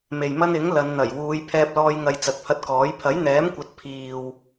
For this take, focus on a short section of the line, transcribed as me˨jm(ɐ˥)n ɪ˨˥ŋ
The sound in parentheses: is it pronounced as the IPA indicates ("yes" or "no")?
yes